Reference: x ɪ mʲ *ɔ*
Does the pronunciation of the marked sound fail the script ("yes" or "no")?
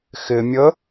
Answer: yes